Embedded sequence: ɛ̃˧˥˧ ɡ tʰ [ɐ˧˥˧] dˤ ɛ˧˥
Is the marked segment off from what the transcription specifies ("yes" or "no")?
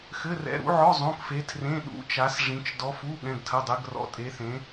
no